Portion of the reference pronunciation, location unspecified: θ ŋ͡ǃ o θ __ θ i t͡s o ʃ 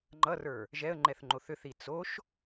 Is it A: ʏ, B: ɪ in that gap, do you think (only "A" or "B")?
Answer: A